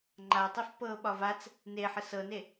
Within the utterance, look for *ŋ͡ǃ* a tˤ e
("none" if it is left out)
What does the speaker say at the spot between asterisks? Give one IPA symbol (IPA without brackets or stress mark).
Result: ŋ͡ǃ